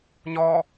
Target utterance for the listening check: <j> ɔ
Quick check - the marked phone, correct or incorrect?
incorrect: ɲ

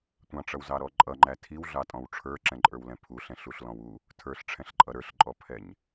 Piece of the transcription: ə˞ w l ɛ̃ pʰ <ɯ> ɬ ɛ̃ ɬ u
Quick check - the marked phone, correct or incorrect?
incorrect: u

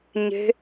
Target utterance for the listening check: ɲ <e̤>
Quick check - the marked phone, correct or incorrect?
correct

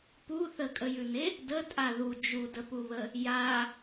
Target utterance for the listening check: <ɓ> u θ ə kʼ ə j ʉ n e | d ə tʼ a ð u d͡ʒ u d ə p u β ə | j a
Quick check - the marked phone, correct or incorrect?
incorrect: p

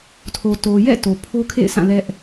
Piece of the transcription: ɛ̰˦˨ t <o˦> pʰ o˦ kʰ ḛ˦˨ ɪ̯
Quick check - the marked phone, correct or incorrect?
incorrect: o˨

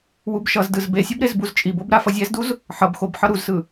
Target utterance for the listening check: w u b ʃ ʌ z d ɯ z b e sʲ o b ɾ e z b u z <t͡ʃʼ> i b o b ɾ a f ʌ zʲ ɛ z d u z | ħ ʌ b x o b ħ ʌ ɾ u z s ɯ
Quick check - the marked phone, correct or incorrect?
correct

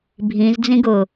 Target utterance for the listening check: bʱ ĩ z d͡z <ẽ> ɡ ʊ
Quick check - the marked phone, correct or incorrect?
incorrect: ĩ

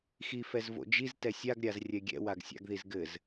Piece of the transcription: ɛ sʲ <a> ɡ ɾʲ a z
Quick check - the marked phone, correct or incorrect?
correct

